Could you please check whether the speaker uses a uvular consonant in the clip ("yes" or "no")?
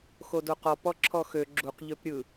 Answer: yes